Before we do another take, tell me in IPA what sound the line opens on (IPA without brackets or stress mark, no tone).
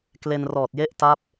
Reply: k